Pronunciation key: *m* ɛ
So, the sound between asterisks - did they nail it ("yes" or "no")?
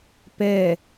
no